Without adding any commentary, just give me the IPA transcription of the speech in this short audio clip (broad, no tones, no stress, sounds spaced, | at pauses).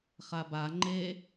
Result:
χ a b a ŋ͡ǃ e